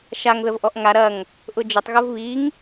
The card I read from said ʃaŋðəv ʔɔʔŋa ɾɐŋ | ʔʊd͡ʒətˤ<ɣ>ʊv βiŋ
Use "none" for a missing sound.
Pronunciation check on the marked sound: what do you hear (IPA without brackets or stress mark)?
ɣ